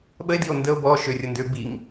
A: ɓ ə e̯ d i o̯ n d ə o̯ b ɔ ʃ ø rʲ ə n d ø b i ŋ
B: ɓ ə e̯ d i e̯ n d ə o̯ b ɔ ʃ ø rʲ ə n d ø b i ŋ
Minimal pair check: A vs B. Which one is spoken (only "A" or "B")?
A